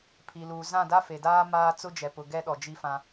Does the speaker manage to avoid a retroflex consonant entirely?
yes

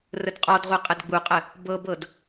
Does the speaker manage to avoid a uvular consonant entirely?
no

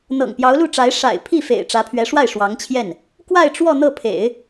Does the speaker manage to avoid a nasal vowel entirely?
yes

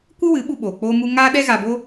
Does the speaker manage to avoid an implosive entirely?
no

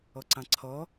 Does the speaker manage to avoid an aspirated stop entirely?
no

